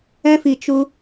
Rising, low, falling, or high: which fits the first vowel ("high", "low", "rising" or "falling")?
high